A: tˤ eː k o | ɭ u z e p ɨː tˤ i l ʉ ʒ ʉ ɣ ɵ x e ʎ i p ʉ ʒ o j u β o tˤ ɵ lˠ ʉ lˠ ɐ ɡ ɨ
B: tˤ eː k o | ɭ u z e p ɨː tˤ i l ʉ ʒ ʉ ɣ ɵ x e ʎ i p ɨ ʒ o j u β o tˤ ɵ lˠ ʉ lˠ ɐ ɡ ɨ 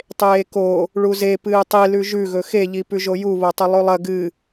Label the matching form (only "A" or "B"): A